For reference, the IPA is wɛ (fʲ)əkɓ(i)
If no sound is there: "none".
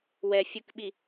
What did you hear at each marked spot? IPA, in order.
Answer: fʲ, i

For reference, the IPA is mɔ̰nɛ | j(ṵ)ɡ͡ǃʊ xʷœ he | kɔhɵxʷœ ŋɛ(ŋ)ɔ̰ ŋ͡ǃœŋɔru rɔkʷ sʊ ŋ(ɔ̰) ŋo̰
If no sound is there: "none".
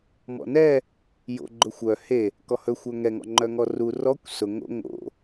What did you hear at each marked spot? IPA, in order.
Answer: o̰, ŋ, o̰

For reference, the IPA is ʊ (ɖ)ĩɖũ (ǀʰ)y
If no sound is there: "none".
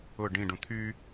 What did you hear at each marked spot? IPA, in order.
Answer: ɖ, t̪ʰ

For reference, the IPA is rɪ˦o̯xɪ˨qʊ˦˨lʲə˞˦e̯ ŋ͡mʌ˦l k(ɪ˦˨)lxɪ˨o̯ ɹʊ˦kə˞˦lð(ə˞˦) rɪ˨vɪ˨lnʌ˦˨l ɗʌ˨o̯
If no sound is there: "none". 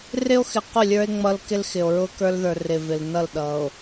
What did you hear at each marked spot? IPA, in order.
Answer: ɪ˦, ə˞˨

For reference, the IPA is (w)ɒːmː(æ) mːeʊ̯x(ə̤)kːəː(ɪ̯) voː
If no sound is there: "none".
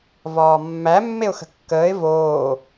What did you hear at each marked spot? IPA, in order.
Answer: v, æ, ə̤, ɪ̯

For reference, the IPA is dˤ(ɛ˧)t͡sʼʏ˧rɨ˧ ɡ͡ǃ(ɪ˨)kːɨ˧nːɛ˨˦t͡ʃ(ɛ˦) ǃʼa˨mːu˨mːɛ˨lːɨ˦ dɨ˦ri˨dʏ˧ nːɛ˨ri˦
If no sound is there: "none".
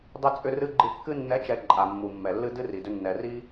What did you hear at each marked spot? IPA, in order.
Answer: ɪ˧, ɨ˨, ɛ˨

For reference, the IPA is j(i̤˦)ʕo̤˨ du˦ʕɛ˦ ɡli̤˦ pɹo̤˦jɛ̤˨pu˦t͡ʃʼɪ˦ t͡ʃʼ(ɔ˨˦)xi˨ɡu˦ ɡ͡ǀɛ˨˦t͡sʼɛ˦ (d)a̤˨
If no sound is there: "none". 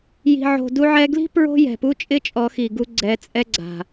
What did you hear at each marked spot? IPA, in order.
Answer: i̤˨, ɔ˨˦, ɡ͡ǀ

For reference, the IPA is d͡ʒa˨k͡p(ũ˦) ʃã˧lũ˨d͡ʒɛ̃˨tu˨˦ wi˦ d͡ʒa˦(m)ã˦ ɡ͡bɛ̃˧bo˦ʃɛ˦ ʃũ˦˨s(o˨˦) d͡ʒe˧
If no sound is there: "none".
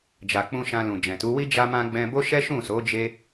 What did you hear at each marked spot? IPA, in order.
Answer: ũ˧, m, o˨˦

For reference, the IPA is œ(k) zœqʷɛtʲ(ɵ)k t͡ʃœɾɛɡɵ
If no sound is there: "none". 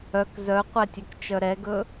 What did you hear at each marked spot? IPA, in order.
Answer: k, ɵ

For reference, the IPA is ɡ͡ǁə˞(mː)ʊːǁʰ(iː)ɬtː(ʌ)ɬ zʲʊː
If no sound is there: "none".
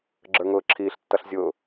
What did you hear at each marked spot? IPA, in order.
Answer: ŋ, iː, ʌ

